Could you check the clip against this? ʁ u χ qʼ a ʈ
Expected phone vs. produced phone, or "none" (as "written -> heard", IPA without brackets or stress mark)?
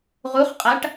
none